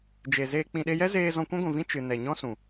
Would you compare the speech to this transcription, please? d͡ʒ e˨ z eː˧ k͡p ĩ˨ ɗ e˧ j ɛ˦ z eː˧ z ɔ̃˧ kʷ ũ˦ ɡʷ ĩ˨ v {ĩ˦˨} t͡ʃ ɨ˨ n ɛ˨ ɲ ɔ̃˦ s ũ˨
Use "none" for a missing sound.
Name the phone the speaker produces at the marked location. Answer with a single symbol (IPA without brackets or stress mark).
ĩ˦